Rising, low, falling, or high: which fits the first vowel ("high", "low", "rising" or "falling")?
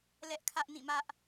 high